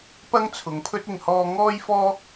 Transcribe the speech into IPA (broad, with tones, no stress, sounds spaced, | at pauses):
p ɐ˥ ŋ t͡sʰ ʊ˨˧ ŋ pʰ ɵ˥ t̚ ɪ˧ ŋ h ɔː˧ ŋ ɔː˥ j f ɔː˥